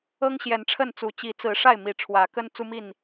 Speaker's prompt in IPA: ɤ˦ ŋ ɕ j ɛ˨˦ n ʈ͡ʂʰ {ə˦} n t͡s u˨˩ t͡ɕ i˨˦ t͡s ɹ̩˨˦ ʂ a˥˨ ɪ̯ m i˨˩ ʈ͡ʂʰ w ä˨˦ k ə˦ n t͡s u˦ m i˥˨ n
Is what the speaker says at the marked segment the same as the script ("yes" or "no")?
no